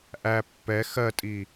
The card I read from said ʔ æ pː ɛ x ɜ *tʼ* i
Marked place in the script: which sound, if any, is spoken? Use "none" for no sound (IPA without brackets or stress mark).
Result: tʼ